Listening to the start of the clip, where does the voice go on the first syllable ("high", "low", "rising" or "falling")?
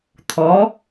rising